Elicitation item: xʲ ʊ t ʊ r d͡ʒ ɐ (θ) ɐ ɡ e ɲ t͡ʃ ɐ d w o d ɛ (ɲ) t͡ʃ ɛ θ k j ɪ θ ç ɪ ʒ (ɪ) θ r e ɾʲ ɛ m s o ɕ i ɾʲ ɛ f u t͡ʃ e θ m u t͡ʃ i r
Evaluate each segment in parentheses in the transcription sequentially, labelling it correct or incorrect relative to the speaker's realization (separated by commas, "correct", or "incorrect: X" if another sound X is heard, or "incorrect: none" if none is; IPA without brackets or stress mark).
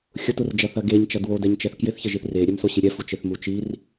correct, correct, incorrect: i